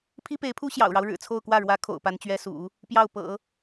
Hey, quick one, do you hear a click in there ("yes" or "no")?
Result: no